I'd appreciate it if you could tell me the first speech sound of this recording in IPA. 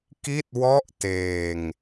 k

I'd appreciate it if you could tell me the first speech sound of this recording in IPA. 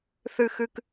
θ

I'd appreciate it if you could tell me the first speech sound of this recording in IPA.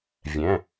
vʲ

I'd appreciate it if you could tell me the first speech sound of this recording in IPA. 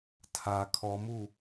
tʰ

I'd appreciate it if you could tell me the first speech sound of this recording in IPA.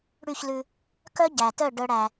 ɽ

